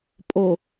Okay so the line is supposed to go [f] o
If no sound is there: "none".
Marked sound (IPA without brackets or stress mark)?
pʼ